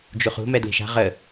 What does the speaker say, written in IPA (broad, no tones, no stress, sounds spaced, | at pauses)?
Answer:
d͡ʒ u χ ṳ m ɛ d l i̤ ʃ a̤ ʁ ə